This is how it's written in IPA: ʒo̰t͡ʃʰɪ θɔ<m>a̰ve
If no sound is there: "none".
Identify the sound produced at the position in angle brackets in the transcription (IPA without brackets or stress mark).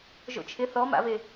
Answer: m